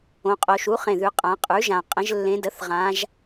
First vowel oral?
no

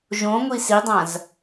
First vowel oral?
no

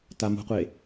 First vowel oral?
yes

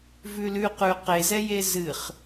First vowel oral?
yes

